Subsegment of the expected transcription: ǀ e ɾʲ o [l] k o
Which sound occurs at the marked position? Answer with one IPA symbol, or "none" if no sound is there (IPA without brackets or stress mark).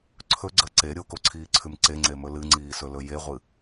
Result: none